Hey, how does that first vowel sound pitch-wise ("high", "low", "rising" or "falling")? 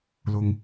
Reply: low